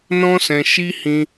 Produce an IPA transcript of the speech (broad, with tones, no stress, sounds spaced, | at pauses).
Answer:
n ɔ̃˦ s ɛ̃˧ ʃ i˦ h ĩ˧